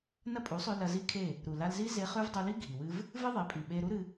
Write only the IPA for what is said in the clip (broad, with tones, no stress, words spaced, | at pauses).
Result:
nɐ˦pʼu˨˦sˤʉ˧ lɐ˧zi˦kʰe˦˨ | ɾu˨ la˧lzi˦ze˧ χʉ˦v dˤu˧li˦ ɡʱi˨wɨ˦v | vɨ˦ðˤe˨˦pʼi˨ɓe˧ ɾu˦ɾɨ˧